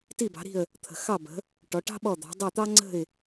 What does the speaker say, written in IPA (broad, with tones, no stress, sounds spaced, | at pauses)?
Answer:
t i˦˨ b ɑ̤˨˦ ɾ i̤˦˨ ə̯ | t̪ʰ ə̤˨ x ɑ˦˨ b ə̤˨˦ | ʈ ɔ˨˦ ʈ ɑ̤˥ ɓ ɔ˦˨ d̪ ɑ̤˨˦ dˤ i˦˨ t̪ ɑ˥ ŋ͡ǀ ə̤˦˨ ɪ̯